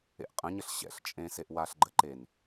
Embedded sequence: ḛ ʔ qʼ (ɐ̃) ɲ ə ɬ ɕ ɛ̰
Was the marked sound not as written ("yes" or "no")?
yes